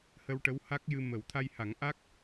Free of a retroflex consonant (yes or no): no